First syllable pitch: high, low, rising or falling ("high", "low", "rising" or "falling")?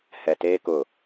low